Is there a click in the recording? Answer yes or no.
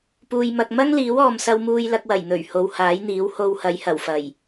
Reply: no